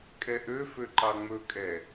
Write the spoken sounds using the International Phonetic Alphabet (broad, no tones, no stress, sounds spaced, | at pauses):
kʼ ɛ ʔ ø f ø ǃ ɑ ŋ͡m ɵ kʼ ɛ